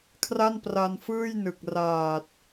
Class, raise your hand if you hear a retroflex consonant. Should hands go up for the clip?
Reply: no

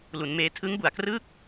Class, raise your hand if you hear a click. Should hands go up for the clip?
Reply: no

